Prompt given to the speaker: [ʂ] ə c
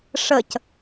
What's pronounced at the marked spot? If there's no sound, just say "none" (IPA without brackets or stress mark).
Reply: ʂ